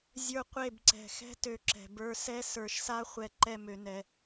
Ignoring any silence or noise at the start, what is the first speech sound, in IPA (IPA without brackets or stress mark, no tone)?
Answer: zʲ